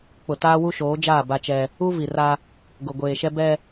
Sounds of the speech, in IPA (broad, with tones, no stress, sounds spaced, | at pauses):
k͡p ʊ˨ t aː˦ w u˦ ʃ oː˨˦ d͡ʒ aː˦˨ b a˦ t͡ʃ ɛ˦ | u˦ v i˨ r a˦ | ɡ ʊ˨ ɡʷ eː˨ ʃ ɛ˦ b ɛ˦